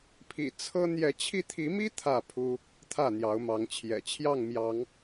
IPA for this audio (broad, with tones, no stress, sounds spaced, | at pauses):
pʰ ḭ˨˩ t͡sʰ ɤ˦ n̪ j ɛ˨˦ t͡ɕʰ i˧ t̪ʰ i˨˦ m i˦ t̪ʰ ä˥˨ pʰ u˦ | t̪ʰ ä˥˨ n̪ j ɑ˨˦ ʊ̯ m ɑ˨˦ ŋ t͡ɕʰ j ɛ̰˨˩ t͡ɕʰ j ɑ˥˨ ŋ m j ɑ˨˦ ŋ